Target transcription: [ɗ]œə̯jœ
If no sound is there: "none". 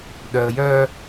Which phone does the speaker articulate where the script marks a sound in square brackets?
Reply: ɗ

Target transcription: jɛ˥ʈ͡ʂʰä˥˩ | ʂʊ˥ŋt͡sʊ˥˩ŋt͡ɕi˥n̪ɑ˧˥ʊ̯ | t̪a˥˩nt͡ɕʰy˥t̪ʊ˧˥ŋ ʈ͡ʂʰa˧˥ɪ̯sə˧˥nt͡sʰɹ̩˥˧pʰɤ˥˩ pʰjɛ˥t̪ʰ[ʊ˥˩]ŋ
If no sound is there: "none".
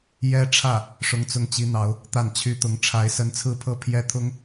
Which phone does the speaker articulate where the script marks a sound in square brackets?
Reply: ʊ˥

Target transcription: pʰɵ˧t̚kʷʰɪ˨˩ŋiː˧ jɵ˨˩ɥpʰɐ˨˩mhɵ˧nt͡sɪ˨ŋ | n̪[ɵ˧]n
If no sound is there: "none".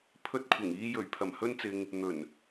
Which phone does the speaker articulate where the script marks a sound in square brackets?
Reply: ɵ˨˩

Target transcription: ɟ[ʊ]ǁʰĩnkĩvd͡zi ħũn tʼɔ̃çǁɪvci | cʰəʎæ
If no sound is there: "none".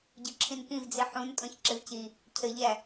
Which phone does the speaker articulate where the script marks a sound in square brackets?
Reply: ʊ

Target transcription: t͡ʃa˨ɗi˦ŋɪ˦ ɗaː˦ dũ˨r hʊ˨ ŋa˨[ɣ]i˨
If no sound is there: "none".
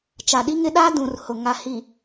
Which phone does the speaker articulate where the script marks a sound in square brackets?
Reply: h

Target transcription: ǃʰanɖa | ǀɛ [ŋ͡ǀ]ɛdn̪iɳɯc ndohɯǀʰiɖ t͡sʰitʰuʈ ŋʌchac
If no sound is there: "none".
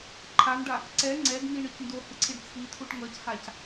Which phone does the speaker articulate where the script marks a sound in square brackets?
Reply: ŋ͡ǀ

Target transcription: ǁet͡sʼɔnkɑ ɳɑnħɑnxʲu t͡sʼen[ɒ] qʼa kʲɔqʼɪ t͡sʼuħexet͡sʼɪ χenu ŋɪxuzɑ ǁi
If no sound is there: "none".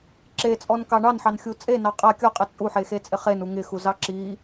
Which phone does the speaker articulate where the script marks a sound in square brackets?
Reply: ɑ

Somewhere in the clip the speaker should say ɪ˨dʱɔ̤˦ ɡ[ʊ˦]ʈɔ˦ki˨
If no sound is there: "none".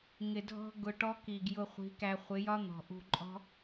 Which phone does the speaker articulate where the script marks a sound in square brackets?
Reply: ʊ˧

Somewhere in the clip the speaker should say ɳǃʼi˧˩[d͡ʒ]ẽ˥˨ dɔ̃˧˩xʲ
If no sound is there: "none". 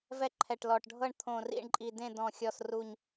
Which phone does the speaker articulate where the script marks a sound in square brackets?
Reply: d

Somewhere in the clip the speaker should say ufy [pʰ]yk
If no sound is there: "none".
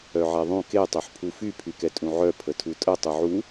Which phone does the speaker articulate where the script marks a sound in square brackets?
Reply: pʰ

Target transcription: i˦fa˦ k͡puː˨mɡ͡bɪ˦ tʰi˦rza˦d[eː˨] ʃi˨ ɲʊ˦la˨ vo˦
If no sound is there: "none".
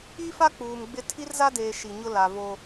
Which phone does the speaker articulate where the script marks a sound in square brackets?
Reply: eː˨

